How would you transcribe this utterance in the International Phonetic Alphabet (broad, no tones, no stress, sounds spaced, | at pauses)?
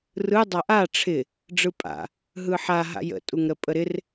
r ɯ dˤ a ʔ a ʈ͡ʂʰ ɪ | ɖ͡ʐ ɯ pʼ a̰ | ɦ ɯ ħ a ɦ a̰ j ə̰ tʼ u ŋ ɾ ə pʼ ə ɾ ɪ r